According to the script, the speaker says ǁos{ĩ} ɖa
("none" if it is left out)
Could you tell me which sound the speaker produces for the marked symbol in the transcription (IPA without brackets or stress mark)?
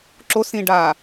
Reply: ĩ